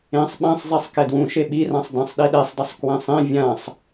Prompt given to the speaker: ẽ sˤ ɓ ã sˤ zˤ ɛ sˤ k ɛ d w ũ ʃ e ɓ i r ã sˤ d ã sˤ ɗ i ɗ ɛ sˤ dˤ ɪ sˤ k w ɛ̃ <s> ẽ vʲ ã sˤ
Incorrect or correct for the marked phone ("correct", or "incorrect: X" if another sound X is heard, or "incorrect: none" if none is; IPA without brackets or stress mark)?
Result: incorrect: sˤ